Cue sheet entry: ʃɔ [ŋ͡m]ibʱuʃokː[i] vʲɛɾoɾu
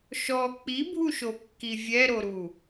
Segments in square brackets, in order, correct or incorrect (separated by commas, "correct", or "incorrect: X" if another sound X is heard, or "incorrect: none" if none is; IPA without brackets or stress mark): incorrect: k͡p, correct